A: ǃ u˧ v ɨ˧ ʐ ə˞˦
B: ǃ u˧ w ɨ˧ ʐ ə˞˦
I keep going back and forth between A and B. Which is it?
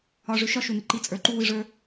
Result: B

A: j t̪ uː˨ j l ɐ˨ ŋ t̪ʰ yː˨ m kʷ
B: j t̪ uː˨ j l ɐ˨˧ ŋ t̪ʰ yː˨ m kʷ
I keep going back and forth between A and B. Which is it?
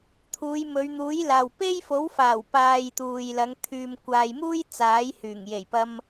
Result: B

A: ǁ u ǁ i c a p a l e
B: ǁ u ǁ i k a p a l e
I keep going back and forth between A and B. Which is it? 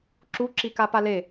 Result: B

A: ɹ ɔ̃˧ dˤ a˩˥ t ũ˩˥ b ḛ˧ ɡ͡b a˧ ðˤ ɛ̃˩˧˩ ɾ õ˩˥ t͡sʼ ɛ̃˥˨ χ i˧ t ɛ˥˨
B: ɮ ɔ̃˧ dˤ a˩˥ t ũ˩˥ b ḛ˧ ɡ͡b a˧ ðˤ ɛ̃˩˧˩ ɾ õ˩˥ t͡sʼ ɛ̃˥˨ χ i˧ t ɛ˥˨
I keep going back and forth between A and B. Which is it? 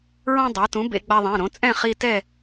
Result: A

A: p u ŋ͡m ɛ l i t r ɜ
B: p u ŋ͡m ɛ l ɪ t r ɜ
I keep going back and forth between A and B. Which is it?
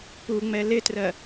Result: B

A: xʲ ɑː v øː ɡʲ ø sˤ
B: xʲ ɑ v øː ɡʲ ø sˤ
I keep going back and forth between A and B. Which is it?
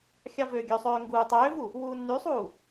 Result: B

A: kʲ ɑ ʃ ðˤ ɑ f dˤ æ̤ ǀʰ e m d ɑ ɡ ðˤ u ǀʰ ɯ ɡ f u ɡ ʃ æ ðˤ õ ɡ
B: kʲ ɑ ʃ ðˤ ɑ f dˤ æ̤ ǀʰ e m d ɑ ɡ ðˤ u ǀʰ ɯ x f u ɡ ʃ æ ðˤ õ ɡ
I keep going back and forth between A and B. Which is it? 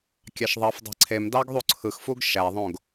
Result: B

